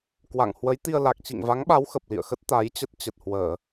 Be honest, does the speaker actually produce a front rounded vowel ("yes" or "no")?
no